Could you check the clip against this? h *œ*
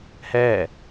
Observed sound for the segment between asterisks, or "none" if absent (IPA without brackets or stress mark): ɛ